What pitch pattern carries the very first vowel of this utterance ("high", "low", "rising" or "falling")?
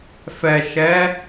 low